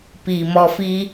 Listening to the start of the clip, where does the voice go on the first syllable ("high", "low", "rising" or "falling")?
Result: low